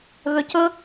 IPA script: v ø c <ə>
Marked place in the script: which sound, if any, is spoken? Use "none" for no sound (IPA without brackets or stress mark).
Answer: ɵ